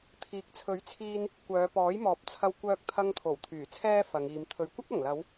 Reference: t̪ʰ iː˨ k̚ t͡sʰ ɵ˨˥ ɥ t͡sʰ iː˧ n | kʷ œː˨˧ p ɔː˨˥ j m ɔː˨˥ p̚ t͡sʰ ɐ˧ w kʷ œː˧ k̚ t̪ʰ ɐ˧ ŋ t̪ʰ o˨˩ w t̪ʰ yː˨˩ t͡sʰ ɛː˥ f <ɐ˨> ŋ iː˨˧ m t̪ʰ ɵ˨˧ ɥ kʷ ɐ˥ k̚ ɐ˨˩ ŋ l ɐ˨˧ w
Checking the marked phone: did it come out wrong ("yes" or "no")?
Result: yes